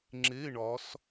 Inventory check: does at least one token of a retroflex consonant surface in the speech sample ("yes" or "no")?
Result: yes